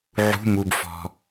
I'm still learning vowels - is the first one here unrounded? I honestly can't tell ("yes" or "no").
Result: no